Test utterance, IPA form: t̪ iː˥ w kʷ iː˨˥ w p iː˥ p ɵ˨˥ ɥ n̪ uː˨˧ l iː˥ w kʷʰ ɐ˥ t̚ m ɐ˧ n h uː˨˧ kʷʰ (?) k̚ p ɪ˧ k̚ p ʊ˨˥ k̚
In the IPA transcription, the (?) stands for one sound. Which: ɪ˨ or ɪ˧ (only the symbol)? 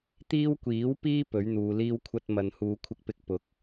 ɪ˧